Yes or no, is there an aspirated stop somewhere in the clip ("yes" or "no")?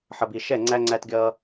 no